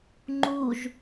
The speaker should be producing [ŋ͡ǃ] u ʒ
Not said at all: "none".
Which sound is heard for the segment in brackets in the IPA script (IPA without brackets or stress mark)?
ŋ͡ǃ